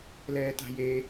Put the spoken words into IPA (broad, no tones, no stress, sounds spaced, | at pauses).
l ɛː t a̤ j e